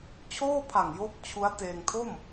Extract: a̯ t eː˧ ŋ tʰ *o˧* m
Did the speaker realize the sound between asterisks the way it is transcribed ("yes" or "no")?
no